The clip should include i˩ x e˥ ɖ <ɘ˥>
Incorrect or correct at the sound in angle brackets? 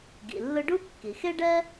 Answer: incorrect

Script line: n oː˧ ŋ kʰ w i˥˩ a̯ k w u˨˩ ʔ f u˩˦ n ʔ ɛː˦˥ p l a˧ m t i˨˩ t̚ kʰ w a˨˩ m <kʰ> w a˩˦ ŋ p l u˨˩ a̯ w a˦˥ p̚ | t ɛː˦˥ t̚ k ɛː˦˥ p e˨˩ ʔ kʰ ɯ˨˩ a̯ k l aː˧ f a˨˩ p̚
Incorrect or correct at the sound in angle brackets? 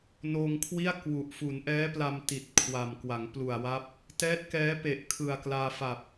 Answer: incorrect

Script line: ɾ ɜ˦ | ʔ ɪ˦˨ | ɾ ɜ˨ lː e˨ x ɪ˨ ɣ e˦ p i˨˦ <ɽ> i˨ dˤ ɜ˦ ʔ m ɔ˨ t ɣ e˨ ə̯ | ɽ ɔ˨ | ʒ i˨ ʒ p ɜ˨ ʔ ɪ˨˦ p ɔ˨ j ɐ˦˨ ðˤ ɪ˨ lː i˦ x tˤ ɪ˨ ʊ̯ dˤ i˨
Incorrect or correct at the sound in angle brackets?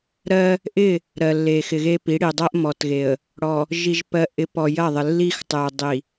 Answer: correct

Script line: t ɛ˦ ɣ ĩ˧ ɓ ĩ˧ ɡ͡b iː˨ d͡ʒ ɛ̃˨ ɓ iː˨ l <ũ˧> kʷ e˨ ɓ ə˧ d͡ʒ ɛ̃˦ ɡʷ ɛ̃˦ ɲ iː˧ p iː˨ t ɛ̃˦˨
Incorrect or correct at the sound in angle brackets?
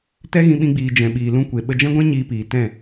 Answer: correct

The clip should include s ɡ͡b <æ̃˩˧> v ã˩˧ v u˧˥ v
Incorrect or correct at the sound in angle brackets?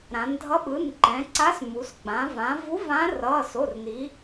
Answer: incorrect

